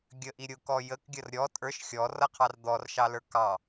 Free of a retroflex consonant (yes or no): yes